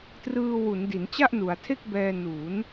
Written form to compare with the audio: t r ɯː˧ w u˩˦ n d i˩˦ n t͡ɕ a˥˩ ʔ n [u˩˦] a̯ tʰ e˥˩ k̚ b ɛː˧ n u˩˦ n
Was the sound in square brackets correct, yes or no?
yes